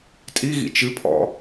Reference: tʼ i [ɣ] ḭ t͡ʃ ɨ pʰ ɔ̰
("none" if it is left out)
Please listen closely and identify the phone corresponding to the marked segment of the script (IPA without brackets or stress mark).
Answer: ɣ